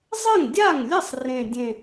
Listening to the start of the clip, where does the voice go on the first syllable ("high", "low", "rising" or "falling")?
falling